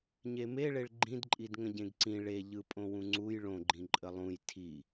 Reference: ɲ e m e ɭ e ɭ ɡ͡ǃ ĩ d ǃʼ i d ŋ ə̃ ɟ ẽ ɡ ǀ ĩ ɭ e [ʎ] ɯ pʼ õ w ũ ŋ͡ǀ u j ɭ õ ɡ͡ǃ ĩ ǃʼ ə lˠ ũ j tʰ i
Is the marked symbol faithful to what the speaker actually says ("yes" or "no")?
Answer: yes